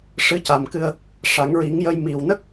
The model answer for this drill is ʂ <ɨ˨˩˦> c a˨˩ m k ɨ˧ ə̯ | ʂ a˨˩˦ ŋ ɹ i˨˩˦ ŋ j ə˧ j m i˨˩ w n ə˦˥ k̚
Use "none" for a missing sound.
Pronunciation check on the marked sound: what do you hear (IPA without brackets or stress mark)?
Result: ɨ˧˥